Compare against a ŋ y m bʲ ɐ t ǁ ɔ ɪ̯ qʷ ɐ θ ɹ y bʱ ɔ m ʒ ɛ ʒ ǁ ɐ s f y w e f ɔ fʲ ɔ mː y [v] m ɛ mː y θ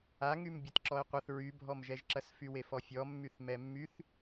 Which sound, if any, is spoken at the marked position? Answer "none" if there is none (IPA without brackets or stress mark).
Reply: θ